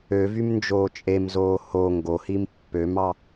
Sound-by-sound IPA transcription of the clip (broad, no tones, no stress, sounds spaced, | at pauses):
ø v y m n d͡ʒ oː t͡ʃʼ e m z oː h o ŋ ɡ o h i m pː ø m ɑ